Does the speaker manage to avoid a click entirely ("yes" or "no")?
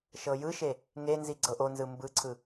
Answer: no